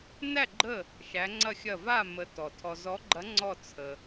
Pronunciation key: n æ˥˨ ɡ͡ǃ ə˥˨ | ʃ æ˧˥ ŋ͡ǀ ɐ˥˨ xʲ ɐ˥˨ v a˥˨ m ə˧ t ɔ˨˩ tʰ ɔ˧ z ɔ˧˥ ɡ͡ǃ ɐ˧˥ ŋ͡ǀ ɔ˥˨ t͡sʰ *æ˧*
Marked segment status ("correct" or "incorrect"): incorrect